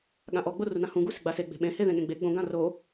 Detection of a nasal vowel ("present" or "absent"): present